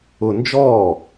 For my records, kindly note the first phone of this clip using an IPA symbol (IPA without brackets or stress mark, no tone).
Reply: ʊ